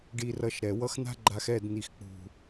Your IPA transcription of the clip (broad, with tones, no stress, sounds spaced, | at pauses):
ɖ i˧ r ʌ˧ ʃ ɾ ɛ˨ w ʌ˦ x n̪ a̤˦ ɡ͡ǃ a˧ x ɛ˦˨ d n̪ i˨ x k͡p ṳ˨